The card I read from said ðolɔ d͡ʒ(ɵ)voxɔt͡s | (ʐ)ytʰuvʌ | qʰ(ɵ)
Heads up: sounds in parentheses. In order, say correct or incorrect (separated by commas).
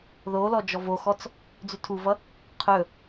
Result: incorrect, incorrect, correct